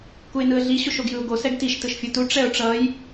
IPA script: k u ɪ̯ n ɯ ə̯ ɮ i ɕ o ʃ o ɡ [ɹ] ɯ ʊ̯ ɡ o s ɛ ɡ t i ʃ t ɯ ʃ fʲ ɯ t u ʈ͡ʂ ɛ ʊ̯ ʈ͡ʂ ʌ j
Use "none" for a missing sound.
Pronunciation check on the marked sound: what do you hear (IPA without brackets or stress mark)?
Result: j